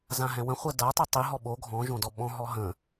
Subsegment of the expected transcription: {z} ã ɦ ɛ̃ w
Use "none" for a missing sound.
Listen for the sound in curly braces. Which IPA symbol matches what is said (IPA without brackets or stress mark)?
z